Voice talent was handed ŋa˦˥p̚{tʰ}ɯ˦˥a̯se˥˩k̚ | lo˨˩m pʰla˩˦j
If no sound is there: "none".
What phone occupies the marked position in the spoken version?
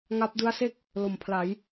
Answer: d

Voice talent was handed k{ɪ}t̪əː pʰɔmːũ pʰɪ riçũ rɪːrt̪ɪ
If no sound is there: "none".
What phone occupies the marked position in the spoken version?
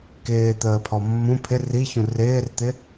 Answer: ɪː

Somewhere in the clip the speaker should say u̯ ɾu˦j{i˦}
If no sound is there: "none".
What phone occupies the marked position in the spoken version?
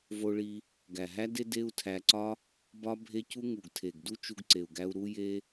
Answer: e˦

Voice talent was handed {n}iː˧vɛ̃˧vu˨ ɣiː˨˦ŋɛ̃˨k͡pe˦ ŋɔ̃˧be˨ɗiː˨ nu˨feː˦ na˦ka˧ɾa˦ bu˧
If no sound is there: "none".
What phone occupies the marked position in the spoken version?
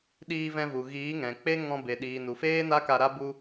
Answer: ɗ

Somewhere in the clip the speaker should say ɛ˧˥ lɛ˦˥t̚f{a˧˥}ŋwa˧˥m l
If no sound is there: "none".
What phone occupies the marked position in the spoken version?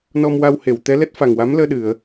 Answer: a˨˩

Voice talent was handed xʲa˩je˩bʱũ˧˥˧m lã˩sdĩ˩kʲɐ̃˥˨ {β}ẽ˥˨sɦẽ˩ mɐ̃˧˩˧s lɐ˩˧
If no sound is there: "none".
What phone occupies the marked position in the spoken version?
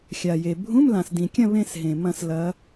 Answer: β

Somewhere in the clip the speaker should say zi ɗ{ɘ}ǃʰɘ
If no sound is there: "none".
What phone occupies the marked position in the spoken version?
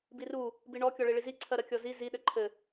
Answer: ɘ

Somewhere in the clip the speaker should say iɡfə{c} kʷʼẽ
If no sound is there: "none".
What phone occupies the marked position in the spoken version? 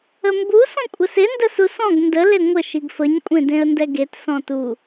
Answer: ɲ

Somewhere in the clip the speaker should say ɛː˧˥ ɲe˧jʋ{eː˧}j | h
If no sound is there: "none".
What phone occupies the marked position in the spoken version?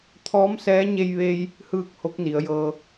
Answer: eː˧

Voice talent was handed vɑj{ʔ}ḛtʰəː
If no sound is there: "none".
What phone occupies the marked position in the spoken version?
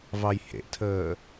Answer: h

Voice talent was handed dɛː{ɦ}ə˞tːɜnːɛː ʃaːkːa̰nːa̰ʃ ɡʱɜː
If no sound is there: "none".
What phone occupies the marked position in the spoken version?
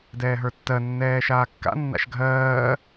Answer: ɦ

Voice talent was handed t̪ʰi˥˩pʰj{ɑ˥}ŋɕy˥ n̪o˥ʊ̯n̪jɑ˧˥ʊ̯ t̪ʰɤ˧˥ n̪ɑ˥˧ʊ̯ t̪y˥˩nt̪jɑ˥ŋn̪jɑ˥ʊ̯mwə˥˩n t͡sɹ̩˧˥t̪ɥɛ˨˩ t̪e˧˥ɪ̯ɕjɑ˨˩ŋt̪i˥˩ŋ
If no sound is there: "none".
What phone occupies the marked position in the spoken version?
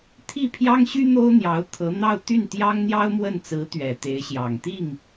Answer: ɑ˥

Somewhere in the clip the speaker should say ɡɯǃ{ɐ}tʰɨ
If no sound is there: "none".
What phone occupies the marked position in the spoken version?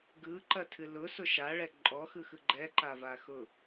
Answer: ɐ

